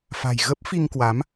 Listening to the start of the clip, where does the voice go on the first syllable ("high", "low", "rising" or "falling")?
low